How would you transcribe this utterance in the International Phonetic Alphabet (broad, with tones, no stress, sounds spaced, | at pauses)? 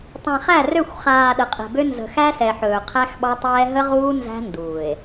tˤ æ̃˨ χ æ˦˨ r ø˦˨ xʷ χ aː˨ ɗ ə˨ qʼ ɛ̤˨ b ø˦ n z ə̤˨ x æ˦ s ɛ˨ ħ ɵː˨ qʰ æ˦ x ɓ ɑ˦ tˤ ɛː˦ ɦ ə˦ ʁ uː˦ n z æ̤˦ n d uː˨ e̯